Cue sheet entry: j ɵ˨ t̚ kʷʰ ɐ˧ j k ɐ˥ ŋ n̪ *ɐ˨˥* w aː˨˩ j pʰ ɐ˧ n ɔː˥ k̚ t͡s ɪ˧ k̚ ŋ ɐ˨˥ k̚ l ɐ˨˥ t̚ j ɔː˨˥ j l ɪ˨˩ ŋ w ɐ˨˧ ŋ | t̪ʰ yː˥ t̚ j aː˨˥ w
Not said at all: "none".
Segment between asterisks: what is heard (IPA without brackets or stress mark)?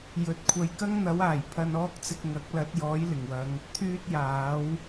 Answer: ɐ˨˥